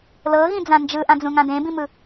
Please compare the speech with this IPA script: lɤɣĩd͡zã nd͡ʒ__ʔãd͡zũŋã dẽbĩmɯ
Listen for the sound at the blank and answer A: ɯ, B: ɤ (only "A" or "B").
A